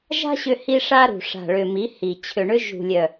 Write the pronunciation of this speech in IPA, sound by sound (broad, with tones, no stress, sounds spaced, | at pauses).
ʒ a̤˦ ɕ ʏ˦ h i˦ ʂ a˦ ɾ ṳ˨ ʂ a̤˨ ɭ ʏ˨ m i˨˦ h i˨ t͡ɕʰ ʏ˨ ɳ ʏ˦ ʒ ṳ˨ lʲ œ˨